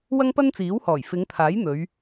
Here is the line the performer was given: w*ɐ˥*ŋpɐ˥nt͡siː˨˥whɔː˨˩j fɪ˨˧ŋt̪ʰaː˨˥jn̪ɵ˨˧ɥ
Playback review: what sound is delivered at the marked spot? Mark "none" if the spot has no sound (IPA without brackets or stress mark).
ɐ˥